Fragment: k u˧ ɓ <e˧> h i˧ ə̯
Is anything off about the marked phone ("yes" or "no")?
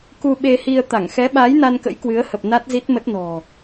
no